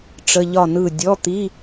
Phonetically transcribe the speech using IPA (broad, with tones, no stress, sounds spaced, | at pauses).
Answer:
ʈ͡ʂ ə˧˥˧ ʎ ɒ˥˨ n ɯ˥˨ dʲ ɔ˧˥˧ t̪ i˧˥˧